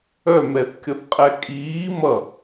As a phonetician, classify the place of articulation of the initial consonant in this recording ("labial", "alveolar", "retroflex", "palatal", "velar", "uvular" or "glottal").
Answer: labial